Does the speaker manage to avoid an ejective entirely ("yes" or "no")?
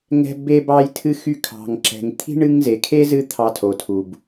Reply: yes